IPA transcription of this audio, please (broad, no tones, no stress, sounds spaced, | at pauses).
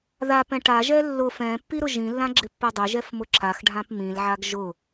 ð a p ɛ̃ ʈ a ʒ ɛ lː ʊ f ɛ̃ pː i ɾ ʊ ʒ ĩ lː ã ɡ͡ǁ ɪ pː ɛ dˤ ɪ ʒ ɛ f m ʊ ǁ a x ɖʱ ã p m ĩ l ʕ a ɡ ʒ ʊ